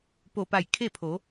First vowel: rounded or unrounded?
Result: rounded